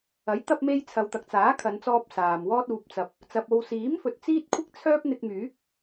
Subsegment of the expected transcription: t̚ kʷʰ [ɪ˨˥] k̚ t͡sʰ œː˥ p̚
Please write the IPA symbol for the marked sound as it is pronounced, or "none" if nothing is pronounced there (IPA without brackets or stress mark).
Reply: ɪ˥